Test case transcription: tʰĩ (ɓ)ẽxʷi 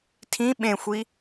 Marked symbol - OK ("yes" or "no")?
yes